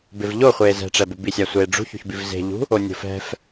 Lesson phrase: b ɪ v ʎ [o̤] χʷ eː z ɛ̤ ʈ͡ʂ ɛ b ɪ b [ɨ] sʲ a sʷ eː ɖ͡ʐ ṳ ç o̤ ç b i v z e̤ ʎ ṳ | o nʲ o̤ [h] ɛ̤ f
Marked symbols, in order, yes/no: no, no, no

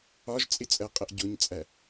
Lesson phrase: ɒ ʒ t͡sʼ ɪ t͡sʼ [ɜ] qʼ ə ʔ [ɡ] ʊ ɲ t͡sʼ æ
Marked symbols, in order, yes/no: yes, no

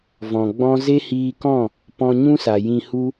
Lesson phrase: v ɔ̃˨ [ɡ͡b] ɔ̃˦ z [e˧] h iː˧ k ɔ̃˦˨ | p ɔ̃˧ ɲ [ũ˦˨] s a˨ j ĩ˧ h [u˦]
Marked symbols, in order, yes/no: yes, no, no, yes

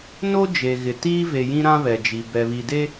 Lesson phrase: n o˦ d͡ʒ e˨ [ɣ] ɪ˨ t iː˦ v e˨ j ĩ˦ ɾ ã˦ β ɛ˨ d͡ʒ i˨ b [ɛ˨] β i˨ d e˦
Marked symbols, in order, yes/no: yes, yes

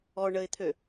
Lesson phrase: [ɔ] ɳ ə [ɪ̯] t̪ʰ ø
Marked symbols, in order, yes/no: yes, yes

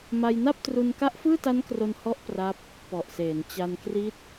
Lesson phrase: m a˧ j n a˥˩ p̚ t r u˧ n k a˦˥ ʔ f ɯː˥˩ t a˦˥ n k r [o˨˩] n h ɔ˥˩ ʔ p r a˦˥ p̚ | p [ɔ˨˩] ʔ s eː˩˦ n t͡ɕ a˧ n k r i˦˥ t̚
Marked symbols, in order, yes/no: no, yes

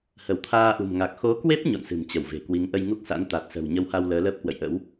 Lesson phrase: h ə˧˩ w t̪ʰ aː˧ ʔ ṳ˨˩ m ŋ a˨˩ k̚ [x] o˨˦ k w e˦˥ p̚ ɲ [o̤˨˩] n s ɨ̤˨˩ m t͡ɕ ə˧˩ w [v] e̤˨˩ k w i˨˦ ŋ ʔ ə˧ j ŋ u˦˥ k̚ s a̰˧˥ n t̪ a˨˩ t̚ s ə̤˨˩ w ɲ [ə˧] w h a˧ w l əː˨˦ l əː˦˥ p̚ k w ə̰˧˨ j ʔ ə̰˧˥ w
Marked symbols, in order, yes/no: yes, no, yes, yes

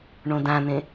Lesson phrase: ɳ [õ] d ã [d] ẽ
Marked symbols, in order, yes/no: yes, no

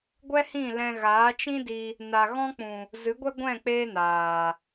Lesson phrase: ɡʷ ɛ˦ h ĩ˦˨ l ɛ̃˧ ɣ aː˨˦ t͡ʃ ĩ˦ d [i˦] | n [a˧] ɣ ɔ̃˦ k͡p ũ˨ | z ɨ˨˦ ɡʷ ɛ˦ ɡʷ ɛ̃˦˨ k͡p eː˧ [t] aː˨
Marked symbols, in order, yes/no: no, yes, no

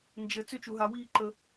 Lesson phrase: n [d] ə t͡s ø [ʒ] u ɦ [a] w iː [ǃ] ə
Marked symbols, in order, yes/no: no, no, yes, yes

